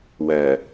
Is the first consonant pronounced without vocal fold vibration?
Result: no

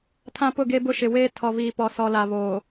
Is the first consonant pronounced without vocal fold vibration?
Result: yes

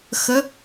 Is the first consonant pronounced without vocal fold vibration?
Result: yes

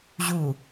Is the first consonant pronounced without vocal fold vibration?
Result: no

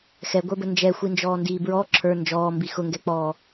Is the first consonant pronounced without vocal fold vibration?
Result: yes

